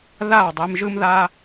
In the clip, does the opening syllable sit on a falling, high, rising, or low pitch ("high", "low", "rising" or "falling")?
falling